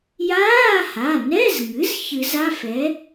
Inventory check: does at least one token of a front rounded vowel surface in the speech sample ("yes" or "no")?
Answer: no